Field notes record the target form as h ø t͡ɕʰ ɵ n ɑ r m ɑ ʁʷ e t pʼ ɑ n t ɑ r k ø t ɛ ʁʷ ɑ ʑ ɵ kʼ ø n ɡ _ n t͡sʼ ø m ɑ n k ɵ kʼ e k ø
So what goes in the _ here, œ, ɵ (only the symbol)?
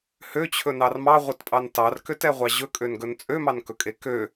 ɵ